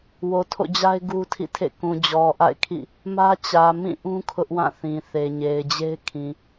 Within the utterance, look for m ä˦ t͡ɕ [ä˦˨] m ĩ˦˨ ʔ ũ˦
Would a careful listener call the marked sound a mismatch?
yes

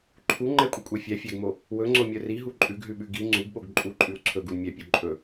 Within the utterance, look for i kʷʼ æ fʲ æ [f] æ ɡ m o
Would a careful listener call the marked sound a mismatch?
yes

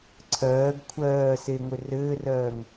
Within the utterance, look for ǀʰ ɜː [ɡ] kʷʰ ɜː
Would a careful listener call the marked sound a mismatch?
no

